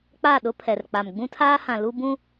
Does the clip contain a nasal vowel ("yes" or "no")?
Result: yes